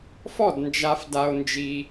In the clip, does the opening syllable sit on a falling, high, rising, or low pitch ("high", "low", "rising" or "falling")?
falling